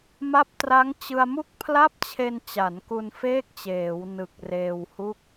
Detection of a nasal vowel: absent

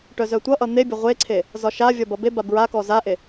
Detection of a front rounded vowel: present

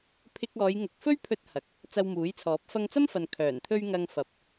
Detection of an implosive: absent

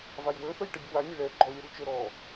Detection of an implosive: absent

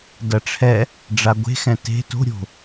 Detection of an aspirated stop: present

